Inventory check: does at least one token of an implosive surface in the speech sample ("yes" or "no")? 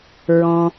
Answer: no